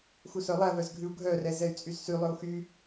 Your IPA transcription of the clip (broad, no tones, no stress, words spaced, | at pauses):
xusœlˠæ vœzɡʱʉu̯ɡʱœ rɛzɛy̯t͡sʼyzsy lˠɵu̯xy